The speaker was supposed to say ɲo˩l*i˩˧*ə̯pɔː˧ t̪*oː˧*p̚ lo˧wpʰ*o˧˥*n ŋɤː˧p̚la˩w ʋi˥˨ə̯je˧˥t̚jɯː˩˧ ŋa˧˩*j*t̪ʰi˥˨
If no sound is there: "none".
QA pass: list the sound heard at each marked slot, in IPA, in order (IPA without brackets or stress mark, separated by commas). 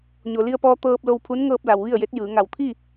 i˧, ɤː˧, u˧˥, w